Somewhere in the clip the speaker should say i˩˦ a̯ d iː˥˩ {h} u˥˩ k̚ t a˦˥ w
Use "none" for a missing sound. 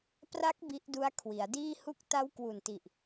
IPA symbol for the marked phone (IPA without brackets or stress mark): h